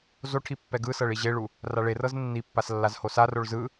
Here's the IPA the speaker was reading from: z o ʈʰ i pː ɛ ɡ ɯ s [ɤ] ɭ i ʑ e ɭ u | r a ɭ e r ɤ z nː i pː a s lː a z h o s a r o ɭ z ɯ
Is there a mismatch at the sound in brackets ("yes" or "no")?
no